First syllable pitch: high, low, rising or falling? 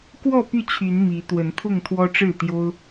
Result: falling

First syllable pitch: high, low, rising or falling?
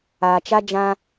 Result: low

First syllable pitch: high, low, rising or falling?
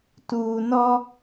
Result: low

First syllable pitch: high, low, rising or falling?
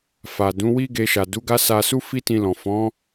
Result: low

